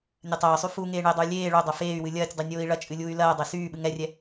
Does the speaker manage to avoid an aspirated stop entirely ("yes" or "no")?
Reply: yes